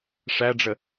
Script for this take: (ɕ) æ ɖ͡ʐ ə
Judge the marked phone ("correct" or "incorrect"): incorrect